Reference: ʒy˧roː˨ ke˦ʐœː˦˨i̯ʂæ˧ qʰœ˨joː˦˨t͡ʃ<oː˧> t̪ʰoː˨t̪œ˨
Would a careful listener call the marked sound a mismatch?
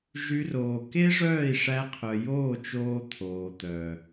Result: no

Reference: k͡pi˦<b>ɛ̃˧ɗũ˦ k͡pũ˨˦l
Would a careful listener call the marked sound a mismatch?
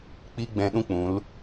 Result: yes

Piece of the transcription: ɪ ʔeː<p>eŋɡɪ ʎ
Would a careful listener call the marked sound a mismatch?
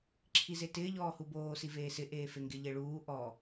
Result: yes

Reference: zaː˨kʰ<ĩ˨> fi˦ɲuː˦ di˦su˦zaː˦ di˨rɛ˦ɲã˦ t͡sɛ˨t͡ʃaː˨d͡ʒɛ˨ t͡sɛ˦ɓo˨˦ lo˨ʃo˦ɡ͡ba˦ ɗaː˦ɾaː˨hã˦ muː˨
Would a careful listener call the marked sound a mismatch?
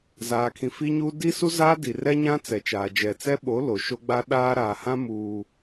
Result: no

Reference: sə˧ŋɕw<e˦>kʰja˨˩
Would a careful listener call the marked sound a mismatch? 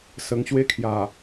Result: no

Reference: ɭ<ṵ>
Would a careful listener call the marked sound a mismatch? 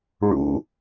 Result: no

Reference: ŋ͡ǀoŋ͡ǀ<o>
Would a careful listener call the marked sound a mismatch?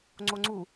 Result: yes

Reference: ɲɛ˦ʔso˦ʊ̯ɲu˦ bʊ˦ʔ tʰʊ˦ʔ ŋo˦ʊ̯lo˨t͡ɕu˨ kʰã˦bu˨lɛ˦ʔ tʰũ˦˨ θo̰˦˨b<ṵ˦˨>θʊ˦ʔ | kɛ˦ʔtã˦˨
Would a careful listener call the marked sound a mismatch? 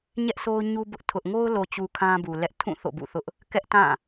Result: no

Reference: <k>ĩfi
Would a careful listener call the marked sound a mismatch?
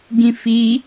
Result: yes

